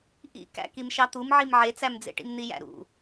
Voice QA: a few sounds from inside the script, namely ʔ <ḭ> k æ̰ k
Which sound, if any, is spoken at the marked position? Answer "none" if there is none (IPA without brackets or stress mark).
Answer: ḭ